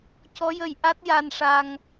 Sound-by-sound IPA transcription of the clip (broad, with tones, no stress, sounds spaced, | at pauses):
c ɔ˧˥ j ə˧ j ʔ a˦˥ t̚ j a˧ n ʂ a˧ ŋ